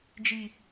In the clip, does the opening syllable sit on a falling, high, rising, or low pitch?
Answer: low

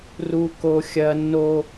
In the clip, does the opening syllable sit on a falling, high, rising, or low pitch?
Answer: low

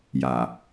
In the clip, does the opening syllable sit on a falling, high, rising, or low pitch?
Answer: low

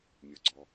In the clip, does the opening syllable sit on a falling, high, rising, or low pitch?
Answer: low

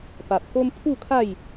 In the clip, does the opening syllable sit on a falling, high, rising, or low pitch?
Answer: low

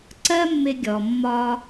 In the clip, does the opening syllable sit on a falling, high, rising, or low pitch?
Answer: high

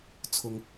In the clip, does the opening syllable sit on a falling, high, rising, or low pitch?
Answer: low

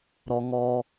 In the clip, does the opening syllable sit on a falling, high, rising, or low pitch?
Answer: low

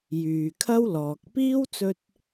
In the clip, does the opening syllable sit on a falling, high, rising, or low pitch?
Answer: low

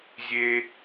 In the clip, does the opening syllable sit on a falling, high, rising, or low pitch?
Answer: high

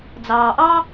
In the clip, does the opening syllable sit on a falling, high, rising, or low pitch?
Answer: low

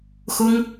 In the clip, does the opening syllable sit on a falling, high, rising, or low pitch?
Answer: high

